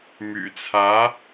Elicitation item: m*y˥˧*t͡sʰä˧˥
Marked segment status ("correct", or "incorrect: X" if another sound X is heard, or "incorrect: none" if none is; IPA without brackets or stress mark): incorrect: y̰˨˩